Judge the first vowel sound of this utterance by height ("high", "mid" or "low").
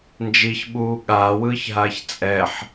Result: high